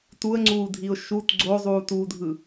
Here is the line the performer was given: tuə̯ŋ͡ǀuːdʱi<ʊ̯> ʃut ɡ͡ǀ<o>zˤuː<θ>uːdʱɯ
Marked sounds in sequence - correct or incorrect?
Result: correct, correct, incorrect

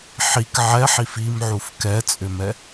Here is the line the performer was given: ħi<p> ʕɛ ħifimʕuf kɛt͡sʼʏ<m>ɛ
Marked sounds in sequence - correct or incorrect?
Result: incorrect, correct

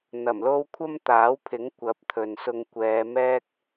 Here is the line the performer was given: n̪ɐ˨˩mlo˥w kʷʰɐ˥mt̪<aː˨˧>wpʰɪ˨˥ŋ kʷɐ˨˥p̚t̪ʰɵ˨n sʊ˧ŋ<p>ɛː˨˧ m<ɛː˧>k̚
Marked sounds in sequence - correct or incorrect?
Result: incorrect, incorrect, incorrect

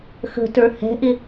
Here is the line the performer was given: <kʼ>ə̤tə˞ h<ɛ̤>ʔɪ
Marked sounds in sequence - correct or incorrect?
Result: incorrect, correct

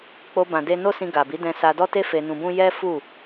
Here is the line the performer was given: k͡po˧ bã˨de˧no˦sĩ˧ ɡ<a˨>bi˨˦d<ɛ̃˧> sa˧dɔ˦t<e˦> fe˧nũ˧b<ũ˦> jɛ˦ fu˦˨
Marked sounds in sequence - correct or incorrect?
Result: correct, correct, correct, correct

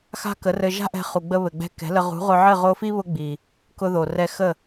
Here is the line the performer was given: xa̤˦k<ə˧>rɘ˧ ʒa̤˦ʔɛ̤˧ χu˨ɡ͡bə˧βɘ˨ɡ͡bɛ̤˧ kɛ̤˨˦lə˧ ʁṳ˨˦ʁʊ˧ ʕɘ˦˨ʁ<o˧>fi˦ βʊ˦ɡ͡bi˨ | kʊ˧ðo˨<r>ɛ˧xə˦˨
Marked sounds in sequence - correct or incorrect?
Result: incorrect, correct, correct

